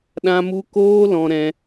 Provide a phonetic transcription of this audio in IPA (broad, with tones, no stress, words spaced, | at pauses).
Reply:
ɗã˦mu˦ koː˦lɔ̃˧ɾɛ̃˧